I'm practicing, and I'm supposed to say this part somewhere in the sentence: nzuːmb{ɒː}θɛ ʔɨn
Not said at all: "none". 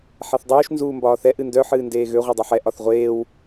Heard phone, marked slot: ɒː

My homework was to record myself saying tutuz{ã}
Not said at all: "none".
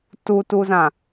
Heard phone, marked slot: ã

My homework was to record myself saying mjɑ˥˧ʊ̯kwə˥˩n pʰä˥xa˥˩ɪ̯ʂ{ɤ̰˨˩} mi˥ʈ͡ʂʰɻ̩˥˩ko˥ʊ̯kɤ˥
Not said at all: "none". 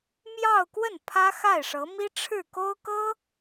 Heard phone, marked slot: ɤ˧˥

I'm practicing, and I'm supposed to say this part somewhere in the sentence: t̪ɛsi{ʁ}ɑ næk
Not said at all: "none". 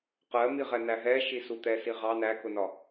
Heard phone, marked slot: ʁ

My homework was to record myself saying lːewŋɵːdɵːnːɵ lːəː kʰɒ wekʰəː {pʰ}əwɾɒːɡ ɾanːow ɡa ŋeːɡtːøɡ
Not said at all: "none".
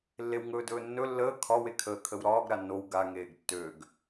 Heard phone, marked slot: kʰ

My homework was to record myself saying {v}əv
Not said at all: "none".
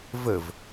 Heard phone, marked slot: v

